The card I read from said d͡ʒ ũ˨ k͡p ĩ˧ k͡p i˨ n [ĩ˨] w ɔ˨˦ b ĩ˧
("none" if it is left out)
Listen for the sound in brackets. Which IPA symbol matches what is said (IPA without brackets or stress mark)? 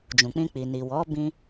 i˨